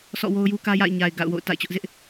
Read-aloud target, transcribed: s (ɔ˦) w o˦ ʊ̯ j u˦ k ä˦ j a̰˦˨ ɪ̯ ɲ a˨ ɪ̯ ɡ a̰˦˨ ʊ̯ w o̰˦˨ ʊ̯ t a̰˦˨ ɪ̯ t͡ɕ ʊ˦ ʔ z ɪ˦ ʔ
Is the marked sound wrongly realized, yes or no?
yes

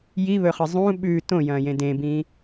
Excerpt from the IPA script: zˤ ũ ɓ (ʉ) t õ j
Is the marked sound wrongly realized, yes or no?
no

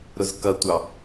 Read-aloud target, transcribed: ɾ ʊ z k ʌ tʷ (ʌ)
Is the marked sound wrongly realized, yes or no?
yes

